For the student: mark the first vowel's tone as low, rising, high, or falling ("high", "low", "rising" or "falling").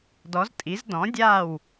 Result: rising